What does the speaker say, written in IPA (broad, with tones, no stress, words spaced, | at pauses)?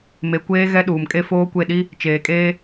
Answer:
me˨kʷeː˦ ɣɛ˦ɗuː˨mkʼe˦ foː˦kʷe˦˨ ɗi˦ | t͡ʃeː˨kʼeː˦